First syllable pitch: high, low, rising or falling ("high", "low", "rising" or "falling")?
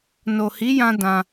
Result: low